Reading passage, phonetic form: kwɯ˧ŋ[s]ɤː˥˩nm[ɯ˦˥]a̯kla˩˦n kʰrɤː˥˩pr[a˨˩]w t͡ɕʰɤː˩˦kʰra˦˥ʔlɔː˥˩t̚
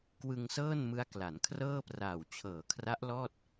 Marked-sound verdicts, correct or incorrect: correct, correct, incorrect: aː˨˩

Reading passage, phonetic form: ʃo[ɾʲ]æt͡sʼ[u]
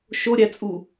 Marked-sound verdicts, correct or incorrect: correct, correct

